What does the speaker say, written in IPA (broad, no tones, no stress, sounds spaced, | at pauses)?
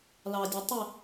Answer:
l ɑ dʲ ɛ tˤ ɪ